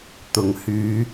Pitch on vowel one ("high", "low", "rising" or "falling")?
low